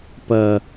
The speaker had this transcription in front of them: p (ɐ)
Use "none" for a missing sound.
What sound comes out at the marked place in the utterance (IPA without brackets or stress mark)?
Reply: ɐ